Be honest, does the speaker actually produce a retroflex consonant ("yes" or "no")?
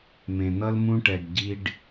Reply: yes